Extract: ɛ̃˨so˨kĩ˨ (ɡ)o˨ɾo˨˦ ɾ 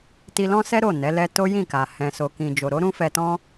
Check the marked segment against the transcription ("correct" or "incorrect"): incorrect